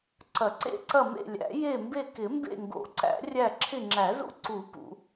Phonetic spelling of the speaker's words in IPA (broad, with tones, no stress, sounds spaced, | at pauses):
ǀ ɐ˨˩˦ ǀ ḛ˦˨ ǀ ɐ˦˨ m ḛ˦˨ lʲ æ̰˨˩˦ j e˦˨ m b e˦˨ k ɪ˨˩˦ m b ḛ˦˨ ŋ ɡ o̰˨˩˦ ǀ æ̰˨˩˦ rʲ æ˦˨ ǁʰ ɪ˦˨ ŋ͡ǁ æ˨˩˦ z ṵ˦˨ ǀ u˨˩˦ p ṵ˨˩˦